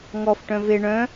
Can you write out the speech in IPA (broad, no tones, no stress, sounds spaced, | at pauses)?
ŋ ɔ f ʈ œ̃ v e ɳ œ̃